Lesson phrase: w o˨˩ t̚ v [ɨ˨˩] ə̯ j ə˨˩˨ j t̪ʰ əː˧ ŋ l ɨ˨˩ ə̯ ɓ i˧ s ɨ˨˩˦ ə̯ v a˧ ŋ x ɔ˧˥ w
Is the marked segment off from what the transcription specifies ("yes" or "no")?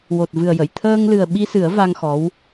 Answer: no